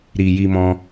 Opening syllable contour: low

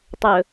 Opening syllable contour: low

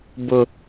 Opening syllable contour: high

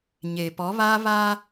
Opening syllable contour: low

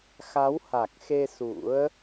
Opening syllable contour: rising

